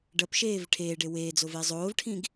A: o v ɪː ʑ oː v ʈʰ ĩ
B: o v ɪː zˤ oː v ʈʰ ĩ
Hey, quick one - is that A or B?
B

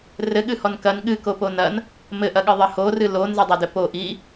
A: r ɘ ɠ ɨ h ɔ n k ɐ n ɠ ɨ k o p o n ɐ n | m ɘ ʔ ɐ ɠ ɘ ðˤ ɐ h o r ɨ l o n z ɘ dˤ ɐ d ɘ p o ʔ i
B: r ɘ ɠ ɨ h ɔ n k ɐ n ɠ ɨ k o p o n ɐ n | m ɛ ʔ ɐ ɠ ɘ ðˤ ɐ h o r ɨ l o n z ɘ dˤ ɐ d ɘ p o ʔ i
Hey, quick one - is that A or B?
A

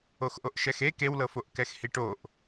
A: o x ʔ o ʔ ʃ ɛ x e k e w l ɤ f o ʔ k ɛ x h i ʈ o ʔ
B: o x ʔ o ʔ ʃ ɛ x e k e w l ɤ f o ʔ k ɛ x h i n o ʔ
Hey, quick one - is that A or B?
A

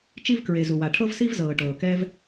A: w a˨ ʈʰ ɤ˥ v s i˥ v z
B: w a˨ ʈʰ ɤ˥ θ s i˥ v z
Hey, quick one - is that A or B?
A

